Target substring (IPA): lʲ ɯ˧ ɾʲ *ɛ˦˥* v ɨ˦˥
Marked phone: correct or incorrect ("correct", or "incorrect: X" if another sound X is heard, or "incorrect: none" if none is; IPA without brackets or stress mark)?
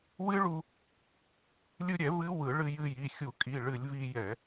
incorrect: ɛ˧˩˧